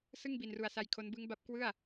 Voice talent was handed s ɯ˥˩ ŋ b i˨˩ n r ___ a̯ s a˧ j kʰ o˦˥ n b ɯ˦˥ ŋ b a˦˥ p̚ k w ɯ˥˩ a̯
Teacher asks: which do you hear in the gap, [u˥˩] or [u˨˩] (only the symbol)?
u˨˩